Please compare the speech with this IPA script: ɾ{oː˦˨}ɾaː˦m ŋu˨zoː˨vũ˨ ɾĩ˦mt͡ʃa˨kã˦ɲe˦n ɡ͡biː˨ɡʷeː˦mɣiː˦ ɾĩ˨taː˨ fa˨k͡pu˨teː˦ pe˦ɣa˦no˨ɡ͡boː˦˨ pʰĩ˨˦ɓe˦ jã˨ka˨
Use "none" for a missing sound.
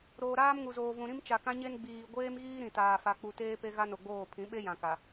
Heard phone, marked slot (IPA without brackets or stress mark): oː˨